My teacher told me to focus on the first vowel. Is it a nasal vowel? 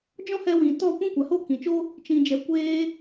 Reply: yes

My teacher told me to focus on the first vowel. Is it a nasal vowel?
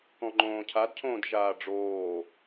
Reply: yes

